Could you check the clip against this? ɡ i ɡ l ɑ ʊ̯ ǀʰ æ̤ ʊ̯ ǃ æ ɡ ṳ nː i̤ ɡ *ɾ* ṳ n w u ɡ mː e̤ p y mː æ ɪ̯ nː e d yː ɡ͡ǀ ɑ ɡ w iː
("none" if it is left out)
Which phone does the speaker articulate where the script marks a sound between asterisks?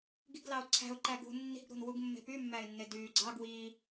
ɾ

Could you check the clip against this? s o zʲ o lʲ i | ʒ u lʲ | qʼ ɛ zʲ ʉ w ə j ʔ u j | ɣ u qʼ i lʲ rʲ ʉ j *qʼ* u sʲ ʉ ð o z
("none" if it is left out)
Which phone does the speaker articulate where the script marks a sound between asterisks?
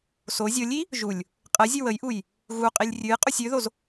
qʼ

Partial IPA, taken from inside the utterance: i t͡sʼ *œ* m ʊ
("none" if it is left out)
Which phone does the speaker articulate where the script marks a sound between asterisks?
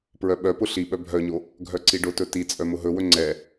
œ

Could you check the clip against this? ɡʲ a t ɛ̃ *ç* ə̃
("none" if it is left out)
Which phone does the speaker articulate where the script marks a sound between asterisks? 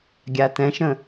ʃ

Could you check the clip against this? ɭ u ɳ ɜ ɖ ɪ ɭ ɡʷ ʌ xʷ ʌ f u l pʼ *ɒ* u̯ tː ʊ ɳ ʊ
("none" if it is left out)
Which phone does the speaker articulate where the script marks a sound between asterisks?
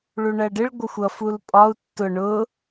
ɒ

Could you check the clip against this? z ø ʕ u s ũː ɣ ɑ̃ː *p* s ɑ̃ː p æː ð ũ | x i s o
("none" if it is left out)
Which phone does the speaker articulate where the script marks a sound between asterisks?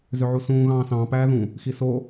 none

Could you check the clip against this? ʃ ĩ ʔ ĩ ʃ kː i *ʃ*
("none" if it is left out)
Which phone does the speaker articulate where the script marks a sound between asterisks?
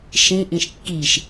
ʃ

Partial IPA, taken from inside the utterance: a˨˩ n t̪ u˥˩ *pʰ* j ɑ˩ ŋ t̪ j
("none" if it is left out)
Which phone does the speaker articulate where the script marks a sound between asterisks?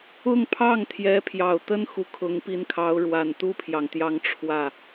pʰ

